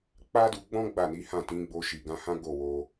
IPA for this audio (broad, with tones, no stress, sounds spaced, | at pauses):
k͡p a˦ d u˧ ɡ͡b ɔ̃˦ ɡ͡b a˦˨ n i˨˦ h ã˦˨ t ĩ˨˦ ɡ͡b o˧ ʃ i˨ ɡ ã˧ h ã˦ ɡ o˦˨ w o˧